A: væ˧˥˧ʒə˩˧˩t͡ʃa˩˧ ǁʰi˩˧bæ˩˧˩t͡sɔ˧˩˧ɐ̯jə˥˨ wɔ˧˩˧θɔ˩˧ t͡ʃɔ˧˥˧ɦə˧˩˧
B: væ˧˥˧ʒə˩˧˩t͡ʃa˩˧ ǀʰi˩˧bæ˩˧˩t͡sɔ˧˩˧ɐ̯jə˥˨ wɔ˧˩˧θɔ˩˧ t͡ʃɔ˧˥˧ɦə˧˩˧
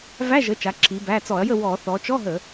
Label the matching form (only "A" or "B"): A